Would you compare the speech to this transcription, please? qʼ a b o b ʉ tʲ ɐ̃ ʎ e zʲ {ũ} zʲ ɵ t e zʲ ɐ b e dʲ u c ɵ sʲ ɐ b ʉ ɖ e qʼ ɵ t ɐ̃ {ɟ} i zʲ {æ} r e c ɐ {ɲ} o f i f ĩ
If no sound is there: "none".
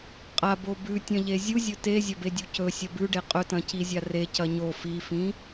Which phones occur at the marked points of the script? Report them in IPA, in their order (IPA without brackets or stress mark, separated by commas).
u, c, a, ɲ